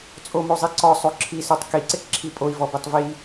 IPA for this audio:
t͡sʼ o m o zˤ i ǀ ɔ sˤ o ǁʰ i s u tˤ k i ǀ ɪ k ǁʰ i pʼ o i̯ v ɔ b i tˤ v i

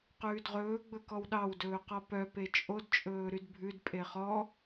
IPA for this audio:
q ʉː d ʁ ɵː ɡ͡b ɵ k ɔ w ɗ ɑ w d ɵː q ɔ p œ p e t͡ʃʼ o d t͡ʃʼ ɵː ɾ y d bʱ ʉ d pʼ e χ ɔ

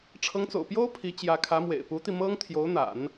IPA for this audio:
ʈ͡ʂʰ ɤ˧˥ ŋ t͡s o̰˨˩ ʊ̯ p j o˥ ʊ̯ pʰ i˧˥ t͡ɕ j ä˧˥ kʰ ä˧˥ m w ḛ˨˩ ɪ̯ p u˧˥ t̪ i˧ m ɤ˥ ŋ t̪ʰ j o˧˥ ʊ̯ n̪ a̰˨˩˦ n

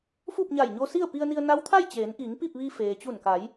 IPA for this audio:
f u˥˨ p̚ ɲ a˧˩ j ɲ o˧ s i˥˨ ə̯ p i˧ ə̯ n i˧ ə̯ n a˧˥ w t̪ʰ a˥˨ j t͡ɕ eː˩˧ n ʔ i˩˧ ŋ p i˥˨ p̚ ʋ i˧ f eː˩ t͡ɕ u˧˩ n k a˩˧ j

